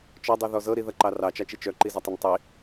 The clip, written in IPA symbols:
t͡ʃ ɔ dˤ i ð ɔ z ɤ ɾ i ð ɐ ǃ ɑ r ɑ t͡ʃ ɑ t͡ʃ i t͡ʃ œ ǃ i z ɐ tˤ ɐ n tˤ i

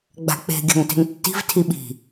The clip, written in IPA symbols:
ɡ͡b a̤ k͡p e̤ ɡʲ a̤ ŋ t e̤ ŋ tː i̤ v tʰ i ɓ i̤

